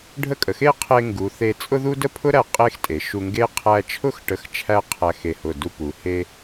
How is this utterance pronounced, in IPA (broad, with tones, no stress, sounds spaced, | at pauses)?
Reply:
ɖʱ ə˥˧ kʼ ə˩˧ x e˥ qʰ e˧ ŋ ɡ u˩˧ θ e˧ t͡sʼ ʊ˥ ð u˥ d ə˥ pʰ ʊ˥ ɾ æ˧ qʼ e˥ x tʼ e˩˧ ʃ u˧ ŋ ɡ e˥ qʰ æ˧ t͡ʃʰ ʊ˥ x ʈ ə˧ x t͡ʃʰ æ˥˧ qʰ æ˧ x e˧˩ h ʊ˧˩ d u˧ p u˩˧ h e˧